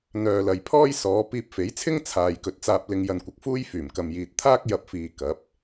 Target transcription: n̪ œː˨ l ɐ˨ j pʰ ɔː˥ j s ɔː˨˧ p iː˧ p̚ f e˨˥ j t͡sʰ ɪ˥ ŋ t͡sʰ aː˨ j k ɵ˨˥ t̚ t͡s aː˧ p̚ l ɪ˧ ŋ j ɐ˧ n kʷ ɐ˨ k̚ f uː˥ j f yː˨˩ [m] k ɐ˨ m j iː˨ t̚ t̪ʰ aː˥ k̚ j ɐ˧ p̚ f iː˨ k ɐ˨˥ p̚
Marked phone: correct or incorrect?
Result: correct